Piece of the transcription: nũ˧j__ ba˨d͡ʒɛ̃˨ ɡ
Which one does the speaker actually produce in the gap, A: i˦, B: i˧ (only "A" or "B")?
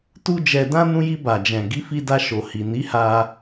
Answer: B